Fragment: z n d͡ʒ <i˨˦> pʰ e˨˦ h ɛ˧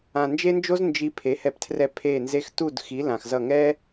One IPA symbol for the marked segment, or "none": i˧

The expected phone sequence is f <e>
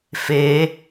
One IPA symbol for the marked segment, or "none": e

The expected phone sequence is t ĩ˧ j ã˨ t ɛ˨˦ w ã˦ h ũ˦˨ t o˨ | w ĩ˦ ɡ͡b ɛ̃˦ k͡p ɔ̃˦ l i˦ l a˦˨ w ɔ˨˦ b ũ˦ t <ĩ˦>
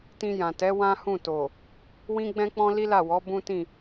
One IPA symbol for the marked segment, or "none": ĩ˦˨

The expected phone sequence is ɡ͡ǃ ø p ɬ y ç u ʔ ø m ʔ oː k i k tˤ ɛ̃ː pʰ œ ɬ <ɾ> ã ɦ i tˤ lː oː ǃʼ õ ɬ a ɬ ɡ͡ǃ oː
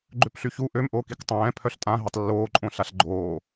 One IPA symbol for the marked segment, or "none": tʼ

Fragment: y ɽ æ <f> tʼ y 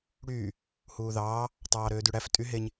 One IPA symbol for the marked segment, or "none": f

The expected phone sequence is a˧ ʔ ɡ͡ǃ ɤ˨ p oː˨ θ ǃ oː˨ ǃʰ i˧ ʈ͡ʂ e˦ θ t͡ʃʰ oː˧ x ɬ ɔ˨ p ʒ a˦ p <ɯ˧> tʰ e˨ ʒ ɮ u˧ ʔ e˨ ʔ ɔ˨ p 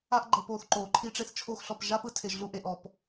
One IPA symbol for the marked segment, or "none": ɯ˧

